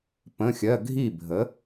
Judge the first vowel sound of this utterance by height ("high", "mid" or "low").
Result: mid